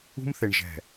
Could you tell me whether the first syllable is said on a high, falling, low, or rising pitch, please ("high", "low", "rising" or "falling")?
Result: high